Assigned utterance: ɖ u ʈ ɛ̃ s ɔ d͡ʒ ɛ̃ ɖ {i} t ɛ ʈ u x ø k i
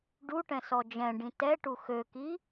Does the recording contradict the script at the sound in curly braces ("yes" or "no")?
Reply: yes